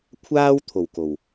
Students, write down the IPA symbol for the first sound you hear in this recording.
kʷʰ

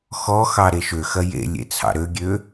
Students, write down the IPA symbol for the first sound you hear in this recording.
x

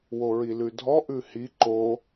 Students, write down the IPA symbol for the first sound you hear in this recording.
w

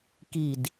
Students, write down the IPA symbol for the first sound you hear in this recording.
k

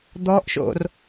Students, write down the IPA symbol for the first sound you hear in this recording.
d̪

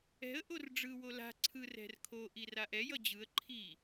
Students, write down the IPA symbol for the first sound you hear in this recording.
ɛ̤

